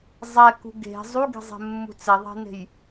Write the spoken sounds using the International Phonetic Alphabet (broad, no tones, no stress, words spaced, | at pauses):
zˤɛkṳ ɡe̤ zˤuɡe̤zˤɛ̤mːṳ t͡sɛðˤe̤ne̤j